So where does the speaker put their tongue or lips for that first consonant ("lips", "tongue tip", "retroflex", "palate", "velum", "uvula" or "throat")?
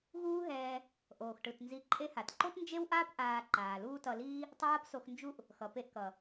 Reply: velum